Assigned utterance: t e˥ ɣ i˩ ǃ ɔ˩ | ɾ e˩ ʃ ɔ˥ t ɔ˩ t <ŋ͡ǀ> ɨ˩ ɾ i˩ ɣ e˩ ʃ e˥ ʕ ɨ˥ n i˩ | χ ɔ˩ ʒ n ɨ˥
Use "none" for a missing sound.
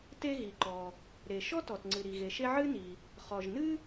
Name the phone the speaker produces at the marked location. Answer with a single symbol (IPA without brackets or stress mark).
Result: ŋ͡ǀ